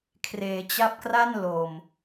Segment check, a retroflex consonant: absent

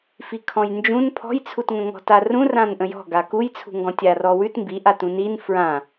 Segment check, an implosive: absent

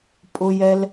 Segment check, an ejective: present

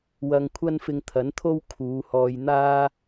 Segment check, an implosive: absent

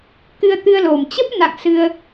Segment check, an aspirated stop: absent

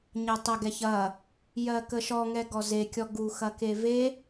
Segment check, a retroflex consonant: absent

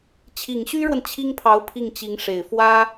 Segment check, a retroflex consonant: present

